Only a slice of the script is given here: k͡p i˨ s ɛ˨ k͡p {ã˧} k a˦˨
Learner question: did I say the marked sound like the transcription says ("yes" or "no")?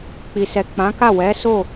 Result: no